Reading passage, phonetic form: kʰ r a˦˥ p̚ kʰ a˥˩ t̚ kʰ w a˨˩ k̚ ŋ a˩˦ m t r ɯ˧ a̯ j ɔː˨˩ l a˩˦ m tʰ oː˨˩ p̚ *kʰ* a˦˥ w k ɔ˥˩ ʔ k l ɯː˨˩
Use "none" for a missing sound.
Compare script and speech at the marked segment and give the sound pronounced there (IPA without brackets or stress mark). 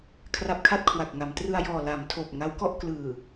ŋ